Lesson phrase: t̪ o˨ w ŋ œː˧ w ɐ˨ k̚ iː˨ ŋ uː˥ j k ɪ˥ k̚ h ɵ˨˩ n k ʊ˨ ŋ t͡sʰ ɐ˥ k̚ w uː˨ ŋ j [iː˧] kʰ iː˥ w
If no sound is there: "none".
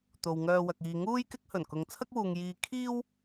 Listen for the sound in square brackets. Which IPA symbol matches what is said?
iː˧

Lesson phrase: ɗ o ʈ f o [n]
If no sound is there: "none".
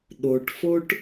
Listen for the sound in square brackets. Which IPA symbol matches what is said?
ʈ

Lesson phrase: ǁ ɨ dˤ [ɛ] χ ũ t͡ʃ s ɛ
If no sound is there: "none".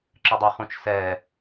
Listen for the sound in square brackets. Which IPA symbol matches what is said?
ɨ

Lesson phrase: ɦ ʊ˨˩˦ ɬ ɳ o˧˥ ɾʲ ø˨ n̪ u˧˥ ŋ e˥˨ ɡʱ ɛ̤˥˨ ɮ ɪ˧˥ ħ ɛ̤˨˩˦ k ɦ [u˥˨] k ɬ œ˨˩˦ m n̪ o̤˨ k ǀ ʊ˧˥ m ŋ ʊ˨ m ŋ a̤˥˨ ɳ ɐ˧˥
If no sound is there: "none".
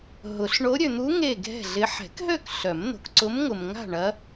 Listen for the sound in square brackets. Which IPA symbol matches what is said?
ø˥˨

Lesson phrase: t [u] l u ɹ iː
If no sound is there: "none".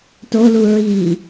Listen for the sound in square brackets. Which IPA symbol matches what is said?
o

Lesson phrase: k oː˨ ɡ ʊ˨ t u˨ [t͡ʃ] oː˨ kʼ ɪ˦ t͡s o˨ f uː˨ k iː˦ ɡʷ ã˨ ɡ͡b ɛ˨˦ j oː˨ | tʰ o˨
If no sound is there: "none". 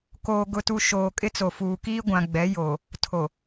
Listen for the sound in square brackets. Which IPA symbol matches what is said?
ʃ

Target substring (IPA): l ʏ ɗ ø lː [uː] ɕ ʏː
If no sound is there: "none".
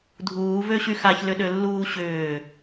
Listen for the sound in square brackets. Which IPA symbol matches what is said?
uː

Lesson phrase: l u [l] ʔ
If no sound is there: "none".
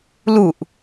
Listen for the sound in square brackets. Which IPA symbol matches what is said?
none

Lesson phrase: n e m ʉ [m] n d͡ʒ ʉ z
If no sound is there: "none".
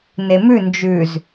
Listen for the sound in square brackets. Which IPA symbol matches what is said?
none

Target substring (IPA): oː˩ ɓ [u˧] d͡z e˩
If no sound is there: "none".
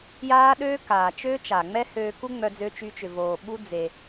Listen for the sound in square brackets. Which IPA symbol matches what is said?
u˧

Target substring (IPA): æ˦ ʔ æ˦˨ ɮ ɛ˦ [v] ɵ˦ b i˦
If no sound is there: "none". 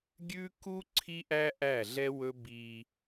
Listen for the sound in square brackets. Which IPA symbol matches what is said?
w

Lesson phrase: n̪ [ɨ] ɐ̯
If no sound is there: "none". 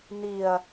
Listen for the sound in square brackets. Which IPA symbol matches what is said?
i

